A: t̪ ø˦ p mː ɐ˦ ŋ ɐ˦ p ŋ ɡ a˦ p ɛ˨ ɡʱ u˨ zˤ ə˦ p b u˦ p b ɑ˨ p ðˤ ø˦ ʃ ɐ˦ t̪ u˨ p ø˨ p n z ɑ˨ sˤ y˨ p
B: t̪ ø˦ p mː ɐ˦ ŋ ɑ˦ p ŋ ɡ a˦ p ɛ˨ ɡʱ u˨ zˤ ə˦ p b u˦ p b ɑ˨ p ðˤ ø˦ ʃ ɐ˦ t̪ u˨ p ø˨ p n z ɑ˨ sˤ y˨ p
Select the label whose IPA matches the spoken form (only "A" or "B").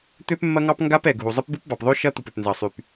B